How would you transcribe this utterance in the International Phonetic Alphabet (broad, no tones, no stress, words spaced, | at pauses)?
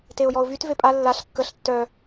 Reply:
teʊ̯jɔʊ̯vyt vepʼa lːaɬ kːəɬ tːœ